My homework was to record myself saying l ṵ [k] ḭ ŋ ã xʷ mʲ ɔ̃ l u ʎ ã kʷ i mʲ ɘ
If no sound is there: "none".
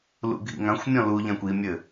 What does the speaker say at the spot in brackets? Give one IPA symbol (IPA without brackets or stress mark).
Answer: ɡʱ